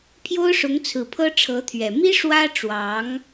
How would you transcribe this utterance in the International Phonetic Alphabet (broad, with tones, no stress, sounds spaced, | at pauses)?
pʰ j o˥ ʊ̯ ʂ ʊ˧˥ ŋ t͡sʰ ɹ̩˨˩ pʰ ɤ˥ ʈ͡ʂʰ ɤ˧˥ t̪ʰ ɥ ɛ˨˩ m i˥ ʂ w ä˥ ʈ͡ʂ w ɑ˧˥ ŋ